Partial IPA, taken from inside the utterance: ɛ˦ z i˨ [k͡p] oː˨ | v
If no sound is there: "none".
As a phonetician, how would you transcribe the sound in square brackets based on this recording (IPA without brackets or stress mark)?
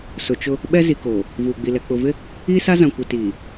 k